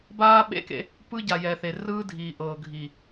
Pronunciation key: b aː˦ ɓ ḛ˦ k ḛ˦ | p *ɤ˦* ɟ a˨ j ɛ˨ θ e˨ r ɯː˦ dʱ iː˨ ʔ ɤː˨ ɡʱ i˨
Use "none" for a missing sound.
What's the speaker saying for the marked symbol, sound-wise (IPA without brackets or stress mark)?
ɯ˦